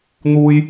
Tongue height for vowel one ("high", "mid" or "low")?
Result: high